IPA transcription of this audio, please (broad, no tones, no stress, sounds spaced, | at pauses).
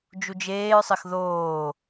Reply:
d͡ʒ u d͡ʒ eː ɹ sˤ ɘ x ð oː